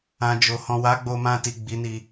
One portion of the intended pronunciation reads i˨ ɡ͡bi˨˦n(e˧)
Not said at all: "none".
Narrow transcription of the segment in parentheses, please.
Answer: i˧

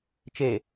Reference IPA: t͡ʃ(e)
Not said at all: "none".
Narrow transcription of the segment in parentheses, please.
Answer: e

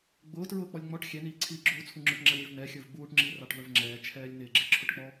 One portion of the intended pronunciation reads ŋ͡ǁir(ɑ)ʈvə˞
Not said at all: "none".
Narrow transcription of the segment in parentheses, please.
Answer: ɑ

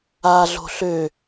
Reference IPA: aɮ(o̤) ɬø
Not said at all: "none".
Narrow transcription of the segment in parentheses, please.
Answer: o̤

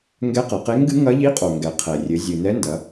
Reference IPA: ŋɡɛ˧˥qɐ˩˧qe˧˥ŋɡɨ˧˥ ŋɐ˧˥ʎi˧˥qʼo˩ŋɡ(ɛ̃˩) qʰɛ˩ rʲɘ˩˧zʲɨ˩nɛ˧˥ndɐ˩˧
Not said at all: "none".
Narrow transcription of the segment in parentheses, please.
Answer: ɛ˩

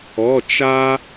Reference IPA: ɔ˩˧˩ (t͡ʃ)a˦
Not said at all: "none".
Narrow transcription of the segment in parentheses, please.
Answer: t͡ʃ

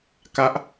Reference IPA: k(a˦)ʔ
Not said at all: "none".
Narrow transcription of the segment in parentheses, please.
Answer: a˦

